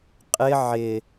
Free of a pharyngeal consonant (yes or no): no